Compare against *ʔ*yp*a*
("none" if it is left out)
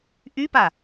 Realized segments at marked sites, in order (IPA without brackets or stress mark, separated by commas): ʔ, a